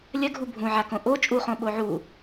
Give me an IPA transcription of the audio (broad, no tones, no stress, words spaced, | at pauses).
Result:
lʲɐɡʱu bʱũʕakõ ʔo t͡ʃʼuχõ ɓoʕu